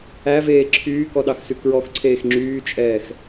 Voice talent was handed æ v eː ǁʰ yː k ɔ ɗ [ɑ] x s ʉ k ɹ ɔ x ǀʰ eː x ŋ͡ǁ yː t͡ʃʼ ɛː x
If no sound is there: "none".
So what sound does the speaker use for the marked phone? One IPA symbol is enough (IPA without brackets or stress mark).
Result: ɑ